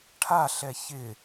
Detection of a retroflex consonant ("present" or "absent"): present